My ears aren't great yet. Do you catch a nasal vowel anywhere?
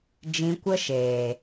yes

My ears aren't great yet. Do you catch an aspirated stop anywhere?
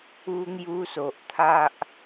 yes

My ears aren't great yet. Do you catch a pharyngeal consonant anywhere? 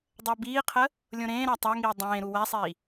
no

